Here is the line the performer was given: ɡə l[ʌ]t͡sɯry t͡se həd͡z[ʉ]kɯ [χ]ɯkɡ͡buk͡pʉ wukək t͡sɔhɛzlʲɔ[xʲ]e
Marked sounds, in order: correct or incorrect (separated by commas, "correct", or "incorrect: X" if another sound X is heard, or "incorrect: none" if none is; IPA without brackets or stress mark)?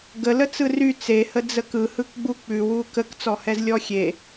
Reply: incorrect: ə, incorrect: ə, incorrect: h, correct